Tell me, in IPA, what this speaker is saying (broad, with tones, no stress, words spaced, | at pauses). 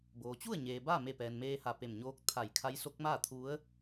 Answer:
boː˩ t͡ɕu˥˨ə̯ɲeː˩ baː˥˨me˧˩pɛː˩n meː˧ha˧˩ pe˧˩mɲoː˧˥k̚ t̪ʰa˧˩jkʰa˧˥jso˧˥k̚maː˥˨ t̪ʰu˧˥ə̯